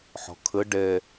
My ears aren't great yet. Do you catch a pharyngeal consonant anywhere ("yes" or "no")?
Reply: yes